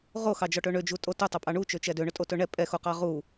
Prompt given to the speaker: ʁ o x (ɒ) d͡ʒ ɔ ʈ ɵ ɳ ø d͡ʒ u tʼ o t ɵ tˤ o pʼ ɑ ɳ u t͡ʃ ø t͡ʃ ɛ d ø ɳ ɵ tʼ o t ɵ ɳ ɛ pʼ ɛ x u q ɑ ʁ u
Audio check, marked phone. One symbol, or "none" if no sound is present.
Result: ɑ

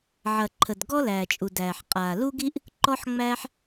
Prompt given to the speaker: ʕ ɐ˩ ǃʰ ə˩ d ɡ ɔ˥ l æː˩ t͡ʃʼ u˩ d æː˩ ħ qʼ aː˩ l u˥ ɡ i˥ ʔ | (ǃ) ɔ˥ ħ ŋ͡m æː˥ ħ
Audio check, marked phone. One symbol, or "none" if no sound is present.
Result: ǃ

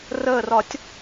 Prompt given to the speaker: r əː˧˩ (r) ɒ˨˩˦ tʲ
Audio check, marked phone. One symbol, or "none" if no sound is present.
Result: r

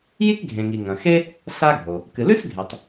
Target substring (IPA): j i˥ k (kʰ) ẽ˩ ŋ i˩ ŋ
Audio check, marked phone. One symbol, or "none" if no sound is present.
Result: ɡʱ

